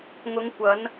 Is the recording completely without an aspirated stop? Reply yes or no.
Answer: yes